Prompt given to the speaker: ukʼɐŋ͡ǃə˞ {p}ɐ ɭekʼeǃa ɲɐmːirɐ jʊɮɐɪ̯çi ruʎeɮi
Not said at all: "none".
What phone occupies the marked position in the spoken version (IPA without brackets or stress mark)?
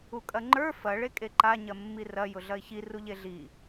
f